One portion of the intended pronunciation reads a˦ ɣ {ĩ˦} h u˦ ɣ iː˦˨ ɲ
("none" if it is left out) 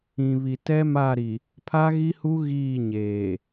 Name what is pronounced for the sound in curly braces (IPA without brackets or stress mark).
i˦